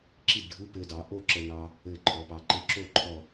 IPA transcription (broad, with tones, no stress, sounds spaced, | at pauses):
ǁ i˥˨ d ɖʱ ɯ˧˥˧ p ɘ˧ d ɑ˩˧ ʔ o˥˨ ǁ ə˧ n ɑ˧ | ɘ˧˩ ǃʰ ɔ˩˧ p ɑ˩˧ ǃ ɘ˧ ǁ o˥˨ ǃʰ ɔ˧˩